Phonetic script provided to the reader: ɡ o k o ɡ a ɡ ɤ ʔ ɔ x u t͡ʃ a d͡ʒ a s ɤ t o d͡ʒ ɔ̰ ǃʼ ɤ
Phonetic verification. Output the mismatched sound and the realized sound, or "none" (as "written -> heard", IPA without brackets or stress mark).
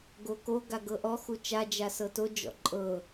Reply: none